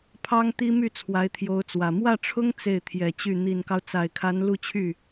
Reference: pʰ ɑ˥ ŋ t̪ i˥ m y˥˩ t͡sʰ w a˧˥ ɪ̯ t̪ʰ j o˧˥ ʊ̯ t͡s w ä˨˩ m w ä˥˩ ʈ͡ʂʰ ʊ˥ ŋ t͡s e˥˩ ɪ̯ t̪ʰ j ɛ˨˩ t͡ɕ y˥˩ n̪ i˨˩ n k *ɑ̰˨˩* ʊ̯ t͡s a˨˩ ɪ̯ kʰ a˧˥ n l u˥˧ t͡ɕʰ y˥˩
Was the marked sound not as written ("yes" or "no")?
yes